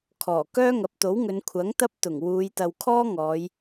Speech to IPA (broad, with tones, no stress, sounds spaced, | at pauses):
kʰ ɔː˨˩ k œː˥ ŋ ɐ˨˥ p̚ t̪ o˨˥ w ŋ ɵ˨˧ n kʷʰ ɐ˨˥ ŋ t̪ ɐ˧ p̚ t̪ ʊ˨˩ ŋ w uː˨˧ j t̪ ɐ˨ w kʰ ɔː˥ ŋ ɔː˨˧ j